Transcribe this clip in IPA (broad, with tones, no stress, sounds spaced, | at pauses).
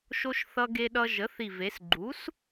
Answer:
ʃ o˧ ʃ θ ʌ˧ ɡ e˧ ɗ ʌ˧ ʒ ə˩˥ θ i˨˩ v e˩˧ s ɡ͡ǃ u˩˥ s